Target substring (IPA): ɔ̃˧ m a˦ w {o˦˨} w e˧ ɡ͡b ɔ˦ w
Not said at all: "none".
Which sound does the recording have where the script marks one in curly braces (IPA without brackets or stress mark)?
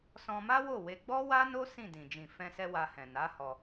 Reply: o˦˨